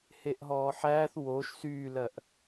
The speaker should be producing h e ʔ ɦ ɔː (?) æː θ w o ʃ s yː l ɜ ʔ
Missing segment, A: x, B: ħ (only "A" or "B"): B